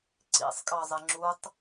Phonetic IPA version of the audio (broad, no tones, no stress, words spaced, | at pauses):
ǀḭsˤkʼɑzˤɪ ŋ͡ǁutˤ